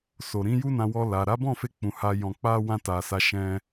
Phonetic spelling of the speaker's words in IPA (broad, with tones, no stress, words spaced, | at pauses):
so˨ɾĩ˨˦ju˦nã˧ wɔ˧ la˨ ɾa˨˦ bɔ̃˦˨fe˧ k͡pũ˨ ha˨jɔ̃˨ k͡pa˧ wã˧ta˨ sa˨ ʃɛ̃˧